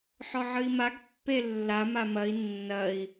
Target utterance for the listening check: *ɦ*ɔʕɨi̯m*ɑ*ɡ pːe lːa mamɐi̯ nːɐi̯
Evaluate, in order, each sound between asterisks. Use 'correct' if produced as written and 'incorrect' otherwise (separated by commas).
incorrect, incorrect